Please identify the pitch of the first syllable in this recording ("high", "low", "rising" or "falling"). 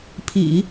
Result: low